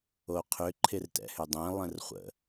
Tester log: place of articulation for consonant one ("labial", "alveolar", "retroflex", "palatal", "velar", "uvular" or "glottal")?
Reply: uvular